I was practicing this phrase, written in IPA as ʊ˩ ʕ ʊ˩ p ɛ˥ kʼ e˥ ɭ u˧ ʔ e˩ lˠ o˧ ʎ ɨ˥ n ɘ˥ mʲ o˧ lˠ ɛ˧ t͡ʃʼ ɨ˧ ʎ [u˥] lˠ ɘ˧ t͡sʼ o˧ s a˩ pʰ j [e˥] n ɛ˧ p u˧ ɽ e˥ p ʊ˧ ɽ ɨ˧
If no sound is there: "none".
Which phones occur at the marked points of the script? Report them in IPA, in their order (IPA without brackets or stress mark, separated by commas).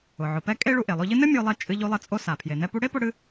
u˧, e˩